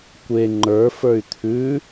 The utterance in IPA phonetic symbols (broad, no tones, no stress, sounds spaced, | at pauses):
kʷ e ŋ͡ǃ ə˞ f ə˞ y̯ t̪ʰ ʉ